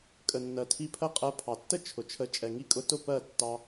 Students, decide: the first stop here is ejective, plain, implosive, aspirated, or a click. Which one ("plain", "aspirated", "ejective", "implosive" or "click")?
ejective